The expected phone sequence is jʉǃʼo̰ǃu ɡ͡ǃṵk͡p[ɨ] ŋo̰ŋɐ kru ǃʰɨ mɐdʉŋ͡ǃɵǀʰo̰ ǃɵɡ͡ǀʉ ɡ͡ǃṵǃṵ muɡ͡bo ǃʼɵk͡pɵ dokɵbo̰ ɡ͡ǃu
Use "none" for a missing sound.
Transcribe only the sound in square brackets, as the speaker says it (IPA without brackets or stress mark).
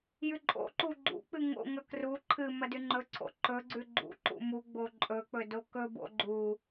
ɨ